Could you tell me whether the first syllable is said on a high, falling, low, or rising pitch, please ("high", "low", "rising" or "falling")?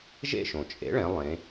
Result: falling